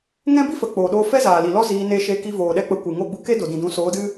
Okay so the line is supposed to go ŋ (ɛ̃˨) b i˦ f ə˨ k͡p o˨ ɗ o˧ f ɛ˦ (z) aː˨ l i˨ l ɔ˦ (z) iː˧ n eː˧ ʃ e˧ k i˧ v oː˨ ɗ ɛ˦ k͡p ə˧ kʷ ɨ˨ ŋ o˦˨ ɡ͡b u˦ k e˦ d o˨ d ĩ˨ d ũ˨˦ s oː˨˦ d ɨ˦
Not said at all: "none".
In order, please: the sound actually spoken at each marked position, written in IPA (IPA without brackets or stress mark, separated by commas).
ɛ̃˦, z, z